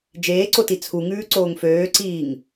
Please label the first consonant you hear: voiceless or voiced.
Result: voiced